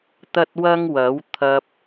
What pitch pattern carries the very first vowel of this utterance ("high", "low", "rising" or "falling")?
high